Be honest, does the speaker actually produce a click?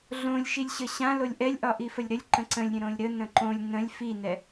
yes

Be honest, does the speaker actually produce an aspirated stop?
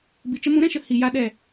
no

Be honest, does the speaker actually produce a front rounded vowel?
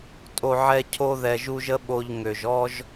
yes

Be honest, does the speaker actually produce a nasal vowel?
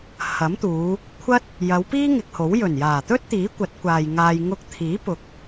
no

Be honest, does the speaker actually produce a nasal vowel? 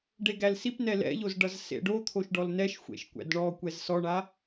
no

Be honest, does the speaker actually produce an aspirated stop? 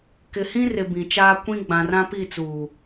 no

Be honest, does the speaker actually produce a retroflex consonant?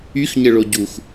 yes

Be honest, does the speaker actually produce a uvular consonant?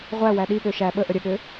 yes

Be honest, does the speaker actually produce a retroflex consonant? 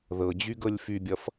no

